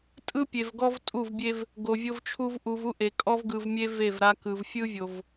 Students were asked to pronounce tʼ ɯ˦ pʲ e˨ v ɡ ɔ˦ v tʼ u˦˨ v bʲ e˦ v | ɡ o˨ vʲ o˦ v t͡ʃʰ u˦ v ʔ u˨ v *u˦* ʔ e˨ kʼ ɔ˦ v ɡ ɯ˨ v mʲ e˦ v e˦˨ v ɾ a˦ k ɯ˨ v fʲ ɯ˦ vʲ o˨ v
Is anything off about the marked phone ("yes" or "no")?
no